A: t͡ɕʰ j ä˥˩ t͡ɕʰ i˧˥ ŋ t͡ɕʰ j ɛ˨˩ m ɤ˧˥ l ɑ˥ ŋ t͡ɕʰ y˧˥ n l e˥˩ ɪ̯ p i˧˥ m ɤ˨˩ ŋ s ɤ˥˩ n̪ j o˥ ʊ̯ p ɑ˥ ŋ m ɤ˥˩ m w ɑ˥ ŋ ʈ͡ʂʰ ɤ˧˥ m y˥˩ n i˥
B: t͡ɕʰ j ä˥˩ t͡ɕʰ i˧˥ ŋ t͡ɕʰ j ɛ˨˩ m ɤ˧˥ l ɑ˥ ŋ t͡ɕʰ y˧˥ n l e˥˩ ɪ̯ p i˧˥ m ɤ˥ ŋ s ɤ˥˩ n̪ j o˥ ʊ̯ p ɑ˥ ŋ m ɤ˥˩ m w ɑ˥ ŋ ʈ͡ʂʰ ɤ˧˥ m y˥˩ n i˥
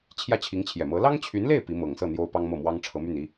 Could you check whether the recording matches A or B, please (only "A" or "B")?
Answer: A